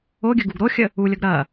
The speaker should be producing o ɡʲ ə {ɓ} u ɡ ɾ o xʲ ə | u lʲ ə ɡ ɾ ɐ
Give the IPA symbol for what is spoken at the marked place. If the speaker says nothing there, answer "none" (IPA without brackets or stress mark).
ɡ